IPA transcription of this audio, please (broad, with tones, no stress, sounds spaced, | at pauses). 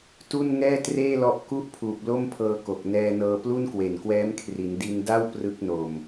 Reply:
t u˥˩ n ŋ ɛː˥˩ t r eː˥˩ l ɔ˦˥ ʔ k u˥˩ ʔ pʰ uː˨˩ p̚ l o˥˩ m pʰ ɤː˧ k o˨˩ k̚ n ɛː˧ n ɤː˧ p l u˥˩ n k w e˨˩ n k w ɛː˦˥ m kʰ r i˩˦ n d i˧ n d a˥˩ w p r ɯ˦˥ k̚ n o˨˩ m